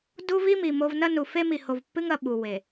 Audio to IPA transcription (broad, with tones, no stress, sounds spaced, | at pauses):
d u˦ v i˦ m i˨ m o˦ v n ɐ˦ n u˨ f e˦ m i˨ h o˨ v pː ɨ˦ ŋ ɐ˨ ɓ u˨ w e˨